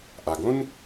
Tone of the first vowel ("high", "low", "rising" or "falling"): low